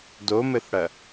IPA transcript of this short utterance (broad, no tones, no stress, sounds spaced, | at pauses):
d o m ɘ θ ɽ ɐ